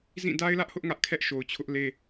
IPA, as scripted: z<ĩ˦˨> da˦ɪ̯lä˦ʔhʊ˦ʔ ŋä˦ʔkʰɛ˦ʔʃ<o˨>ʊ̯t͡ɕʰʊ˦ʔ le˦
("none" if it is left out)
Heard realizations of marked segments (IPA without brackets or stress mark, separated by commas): ĩ˦˨, o˨